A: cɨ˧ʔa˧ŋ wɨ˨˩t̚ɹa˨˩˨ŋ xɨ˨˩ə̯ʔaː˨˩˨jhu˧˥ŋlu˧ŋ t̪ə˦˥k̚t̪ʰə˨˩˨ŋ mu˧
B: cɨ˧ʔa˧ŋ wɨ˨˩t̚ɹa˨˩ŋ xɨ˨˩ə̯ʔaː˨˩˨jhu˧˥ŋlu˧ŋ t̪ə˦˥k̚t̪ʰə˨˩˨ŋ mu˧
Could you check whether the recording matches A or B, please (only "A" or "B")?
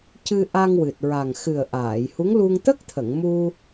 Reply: B